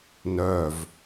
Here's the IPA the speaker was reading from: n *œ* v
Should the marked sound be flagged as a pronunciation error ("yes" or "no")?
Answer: no